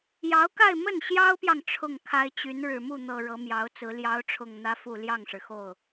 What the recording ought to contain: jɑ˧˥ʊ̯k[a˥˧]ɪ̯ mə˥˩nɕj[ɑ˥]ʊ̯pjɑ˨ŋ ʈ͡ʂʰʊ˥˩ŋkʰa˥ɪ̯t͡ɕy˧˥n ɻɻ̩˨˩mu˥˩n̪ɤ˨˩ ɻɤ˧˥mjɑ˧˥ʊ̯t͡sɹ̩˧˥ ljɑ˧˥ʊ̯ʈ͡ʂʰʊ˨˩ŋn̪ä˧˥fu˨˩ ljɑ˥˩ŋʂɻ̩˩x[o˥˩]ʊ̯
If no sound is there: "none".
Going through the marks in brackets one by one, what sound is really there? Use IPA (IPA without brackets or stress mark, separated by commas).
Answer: a˥˧, ɑ˥, o˥˩